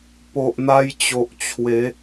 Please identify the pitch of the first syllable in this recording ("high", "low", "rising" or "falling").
low